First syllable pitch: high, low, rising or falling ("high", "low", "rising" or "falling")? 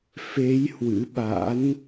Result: rising